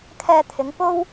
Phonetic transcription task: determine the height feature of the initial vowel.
mid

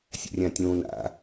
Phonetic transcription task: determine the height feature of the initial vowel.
mid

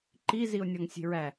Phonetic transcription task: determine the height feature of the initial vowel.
high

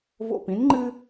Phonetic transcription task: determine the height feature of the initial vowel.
mid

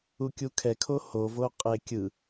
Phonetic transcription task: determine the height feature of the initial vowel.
high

